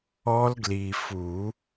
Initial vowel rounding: rounded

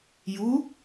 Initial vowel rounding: rounded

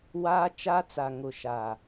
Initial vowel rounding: unrounded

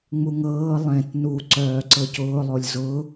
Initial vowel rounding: rounded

